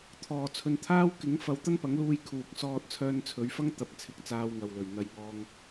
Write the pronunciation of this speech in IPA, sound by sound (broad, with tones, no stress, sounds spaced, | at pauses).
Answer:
t̪ʰ ɔː˨˩ t͡sʰ ɵ˨ n t̪ʰ aː˥ w k ɪ˨˥ ŋ f ɐ˧ w t̪ ɐ˥ n p ɐ˨˥ ŋ l uː˧ j kʰ uː˨ k̚ s ɔː˥ t̚ t͡sʰ œː˥ n t͡sʰ ɵ˨˧ ɥ f ɐ˥ ŋ t̪ ɐ˨˥ p̚ t͡sʰ ɪ˨˥ k̚ t͡s aː˧ w ŋ ɐ˨ w l ɵ˨˩ ɥ n̪ ɐ˧ j ŋ ɔː˧ ŋ